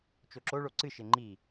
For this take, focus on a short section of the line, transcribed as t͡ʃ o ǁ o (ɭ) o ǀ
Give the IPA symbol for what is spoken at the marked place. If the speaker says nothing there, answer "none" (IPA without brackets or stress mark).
ɭ